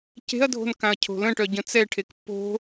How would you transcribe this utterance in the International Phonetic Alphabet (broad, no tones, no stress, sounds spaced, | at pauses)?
c e̤ ɐ̯ dʱ o̤ n k ã ɐ̯ cʰ o̤ l ə̃ ʈ œ ɟ ə̃ t͡s ɛ ʈʰ e k pː o̤